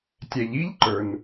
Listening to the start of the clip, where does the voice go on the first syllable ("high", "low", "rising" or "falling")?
low